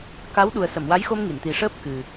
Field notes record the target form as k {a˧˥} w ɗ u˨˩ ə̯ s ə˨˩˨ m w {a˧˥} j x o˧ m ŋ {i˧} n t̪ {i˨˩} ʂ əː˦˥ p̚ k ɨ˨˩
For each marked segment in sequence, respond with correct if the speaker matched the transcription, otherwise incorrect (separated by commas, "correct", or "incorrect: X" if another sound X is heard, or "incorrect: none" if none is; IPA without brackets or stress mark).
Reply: correct, correct, incorrect: i˨˩˨, correct